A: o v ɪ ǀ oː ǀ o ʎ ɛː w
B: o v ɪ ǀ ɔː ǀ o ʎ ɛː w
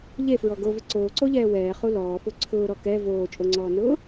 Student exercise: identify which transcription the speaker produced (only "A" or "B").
A